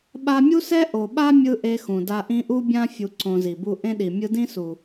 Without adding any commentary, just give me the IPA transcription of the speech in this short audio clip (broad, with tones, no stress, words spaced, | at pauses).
ɓa˧mʲu˦sɛ˦ ʔo˨ɓa˦mʲɯ˧ ʔe˧xũ˨da˧ ʔĩ˧ʔu˦bʲã˦ fʲu˧ǀõ˧zi˨bu˦ ʔẽ˦ɗi˨ mʲɯ˧dĩ˦su˨